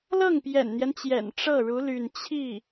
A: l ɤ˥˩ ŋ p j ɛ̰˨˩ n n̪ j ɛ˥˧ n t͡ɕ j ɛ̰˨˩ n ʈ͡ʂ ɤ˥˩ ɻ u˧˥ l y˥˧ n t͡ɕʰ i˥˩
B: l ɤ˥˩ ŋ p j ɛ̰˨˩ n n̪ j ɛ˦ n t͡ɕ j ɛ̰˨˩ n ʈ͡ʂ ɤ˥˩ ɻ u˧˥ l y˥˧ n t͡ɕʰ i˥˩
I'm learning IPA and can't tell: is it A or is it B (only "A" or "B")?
B